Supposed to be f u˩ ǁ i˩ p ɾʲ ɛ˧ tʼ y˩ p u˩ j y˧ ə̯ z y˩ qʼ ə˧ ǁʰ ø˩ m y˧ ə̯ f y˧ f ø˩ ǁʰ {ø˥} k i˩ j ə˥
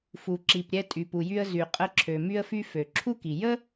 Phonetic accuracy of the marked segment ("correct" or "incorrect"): incorrect